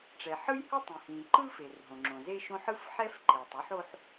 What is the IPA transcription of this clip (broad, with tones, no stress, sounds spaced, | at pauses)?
ʈ͡ʂ ɛ˩ ħ ɯ˥ j h ɯ˥ tˤ ĩ˩ h ĩ˩ ǃ ɯ˥ f e˩ r ɦ õ˩ ŋ͡ǁ õ˩ z e˥ ʃ õ˥ ħ ɯ˥ f ħ ɛ˥ f ǃ e˩ tˤ u˥ ħ o˥ ħ